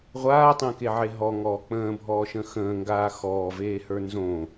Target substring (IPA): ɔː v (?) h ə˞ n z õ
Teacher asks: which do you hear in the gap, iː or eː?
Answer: eː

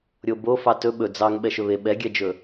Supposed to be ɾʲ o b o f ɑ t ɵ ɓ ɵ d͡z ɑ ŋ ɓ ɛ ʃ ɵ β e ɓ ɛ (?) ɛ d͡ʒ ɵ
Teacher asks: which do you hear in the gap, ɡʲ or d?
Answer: ɡʲ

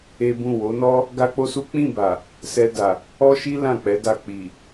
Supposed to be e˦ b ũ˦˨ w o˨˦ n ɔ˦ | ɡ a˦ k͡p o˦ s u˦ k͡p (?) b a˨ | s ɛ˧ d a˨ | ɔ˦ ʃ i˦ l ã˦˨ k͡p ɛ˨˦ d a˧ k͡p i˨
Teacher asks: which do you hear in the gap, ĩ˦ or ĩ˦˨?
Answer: ĩ˦˨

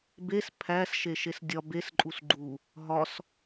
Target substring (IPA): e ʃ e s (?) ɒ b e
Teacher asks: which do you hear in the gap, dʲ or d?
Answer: dʲ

